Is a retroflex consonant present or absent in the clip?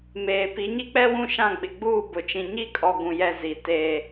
absent